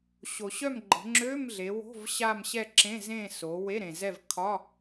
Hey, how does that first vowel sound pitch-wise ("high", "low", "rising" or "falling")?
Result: low